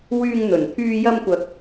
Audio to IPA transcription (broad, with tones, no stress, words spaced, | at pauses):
wyː˧ŋn̪ɵ˨˩nt̪ʰyː˧ jɐ˧mkʷɐ˨k̚